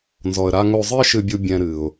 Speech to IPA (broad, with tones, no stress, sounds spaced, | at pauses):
n z ɔ˨ ə̯ ɾ a˧ ŋ o˧ zˤ ɨ˦ ə̯ ʃ ɨ˧ bʲ u˧ bʲ ɛ̃˧ ɾ ɨ˨ ʊ̯